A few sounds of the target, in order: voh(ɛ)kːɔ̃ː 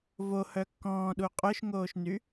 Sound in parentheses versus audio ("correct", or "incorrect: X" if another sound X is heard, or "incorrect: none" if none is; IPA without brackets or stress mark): incorrect: œ